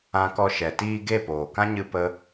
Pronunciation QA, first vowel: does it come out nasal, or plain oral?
nasal